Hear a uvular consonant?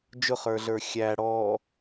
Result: yes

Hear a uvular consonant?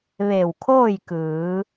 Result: no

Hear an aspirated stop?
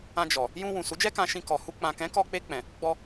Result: no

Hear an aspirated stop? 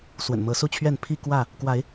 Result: yes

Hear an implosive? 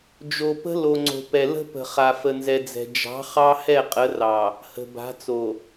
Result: no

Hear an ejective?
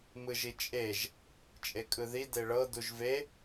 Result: yes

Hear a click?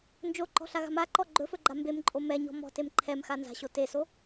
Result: yes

